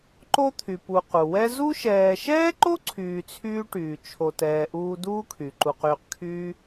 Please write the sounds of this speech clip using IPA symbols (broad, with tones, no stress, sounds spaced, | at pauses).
ǃ o˦ t̪ʰ y˩ p u˨ q u˩ w ɛ˦ z u˦ ʃ ɛː˨ ʃ ɛː˥ ǃ o˥ ǀʰ yː˨ t͡sʰ yː˦ ʈ yː˩ t͡ʃʰ o˨ t ɛː˨ ʔ uː˦ d uː˥ kʰ y˩ ǃ u˨ q yː˨ q kʰ yː˦